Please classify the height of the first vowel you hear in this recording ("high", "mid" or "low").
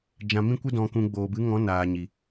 low